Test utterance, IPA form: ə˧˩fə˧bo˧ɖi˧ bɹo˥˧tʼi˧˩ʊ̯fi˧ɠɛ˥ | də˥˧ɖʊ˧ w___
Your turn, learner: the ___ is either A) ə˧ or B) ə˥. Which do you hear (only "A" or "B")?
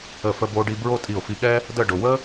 B